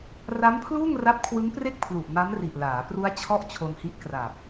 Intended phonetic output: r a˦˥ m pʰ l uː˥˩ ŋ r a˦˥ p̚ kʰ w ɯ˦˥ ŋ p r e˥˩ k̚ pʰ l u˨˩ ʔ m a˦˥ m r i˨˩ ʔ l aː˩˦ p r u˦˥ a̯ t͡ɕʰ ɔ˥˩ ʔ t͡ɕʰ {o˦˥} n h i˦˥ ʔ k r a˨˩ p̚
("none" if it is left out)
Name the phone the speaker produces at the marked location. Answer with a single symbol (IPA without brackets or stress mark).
o˧